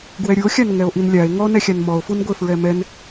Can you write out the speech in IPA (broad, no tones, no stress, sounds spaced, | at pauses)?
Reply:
ɡ w ɛ ɾʲ u o̯ xʲ a n ŋ ɛ o̯ ʔ i n lʲ a e̯ ŋ ɔ n ɛ xʲ a n m ɔ o̯ f u n ɡʷ e f ɹ ɛ m ɛ n